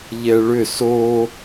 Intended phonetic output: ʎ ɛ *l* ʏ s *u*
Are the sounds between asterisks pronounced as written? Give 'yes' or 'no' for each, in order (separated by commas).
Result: no, no